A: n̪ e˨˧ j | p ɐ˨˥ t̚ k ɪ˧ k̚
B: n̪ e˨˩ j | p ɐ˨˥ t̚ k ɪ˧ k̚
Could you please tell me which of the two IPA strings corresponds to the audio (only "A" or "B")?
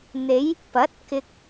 A